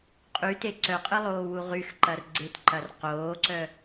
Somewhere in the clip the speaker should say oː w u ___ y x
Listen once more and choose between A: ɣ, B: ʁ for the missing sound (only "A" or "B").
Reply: B